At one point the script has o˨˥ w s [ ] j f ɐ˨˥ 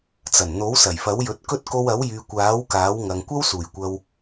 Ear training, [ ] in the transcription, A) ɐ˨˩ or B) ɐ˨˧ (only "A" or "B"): A